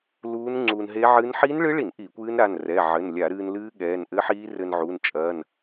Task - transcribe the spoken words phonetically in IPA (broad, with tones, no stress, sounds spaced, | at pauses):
l uː˦˥ n ŋ͡ǀ uː˧ n ɦ e˦˥ ʕ ɨː˦˥ n ħ iː˦˥ n ɭ ɨ˦˥ ɭ i˧˩˧ n ʔ i˧˩˧ kʷ ɨː˦˥ n ɾ a˩˧˩ n r ɛ˩˧˩ ʕ ɘ˩˧˩ n lʲ a˧˩˧ ɾ ɨː˧ n l ɨː˦˥ ɠ ɛː˩˧˩ n ʔ ɘ˦˥ ħ iː˦˥ r ɘ˧ n ʕ u˩˧˩ n t͡ʃʼ ɐː˩˧˩ n